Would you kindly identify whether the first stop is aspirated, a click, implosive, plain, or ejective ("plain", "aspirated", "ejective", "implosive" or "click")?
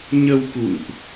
plain